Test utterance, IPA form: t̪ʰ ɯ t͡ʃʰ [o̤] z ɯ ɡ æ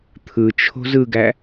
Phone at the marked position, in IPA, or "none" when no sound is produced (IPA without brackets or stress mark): o̤